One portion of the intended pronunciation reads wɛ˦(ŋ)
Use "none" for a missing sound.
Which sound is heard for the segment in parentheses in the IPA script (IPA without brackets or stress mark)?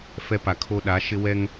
ŋ